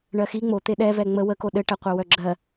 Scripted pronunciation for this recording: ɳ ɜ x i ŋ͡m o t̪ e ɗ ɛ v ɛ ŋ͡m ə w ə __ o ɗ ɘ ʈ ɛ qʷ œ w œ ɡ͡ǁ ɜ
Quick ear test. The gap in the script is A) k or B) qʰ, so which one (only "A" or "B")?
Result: A